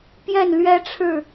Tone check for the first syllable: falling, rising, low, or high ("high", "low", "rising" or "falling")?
falling